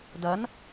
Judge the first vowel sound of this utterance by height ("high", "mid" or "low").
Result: low